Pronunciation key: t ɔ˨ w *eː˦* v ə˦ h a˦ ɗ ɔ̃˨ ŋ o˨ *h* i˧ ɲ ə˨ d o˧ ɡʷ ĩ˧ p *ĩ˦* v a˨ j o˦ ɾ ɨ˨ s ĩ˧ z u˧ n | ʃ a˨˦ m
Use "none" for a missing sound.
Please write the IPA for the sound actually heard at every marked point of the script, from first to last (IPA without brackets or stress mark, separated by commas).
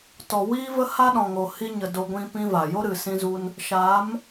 iː˦, h, ĩ˦